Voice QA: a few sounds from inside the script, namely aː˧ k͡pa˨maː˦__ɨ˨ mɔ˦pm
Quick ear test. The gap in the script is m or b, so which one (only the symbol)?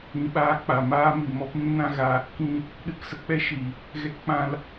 m